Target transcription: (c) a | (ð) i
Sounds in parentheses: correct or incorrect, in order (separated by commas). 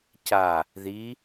correct, correct